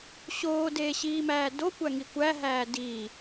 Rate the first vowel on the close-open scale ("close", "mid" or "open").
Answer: mid